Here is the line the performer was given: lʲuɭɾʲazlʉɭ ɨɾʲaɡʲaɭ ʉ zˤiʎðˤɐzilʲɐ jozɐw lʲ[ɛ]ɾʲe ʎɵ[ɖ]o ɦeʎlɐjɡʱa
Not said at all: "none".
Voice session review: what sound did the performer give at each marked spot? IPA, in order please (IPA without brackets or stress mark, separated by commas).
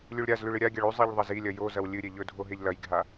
ɨ, dʱ